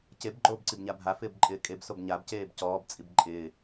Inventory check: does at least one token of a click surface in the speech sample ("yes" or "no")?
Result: yes